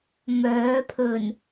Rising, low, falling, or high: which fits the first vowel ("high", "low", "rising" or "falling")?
rising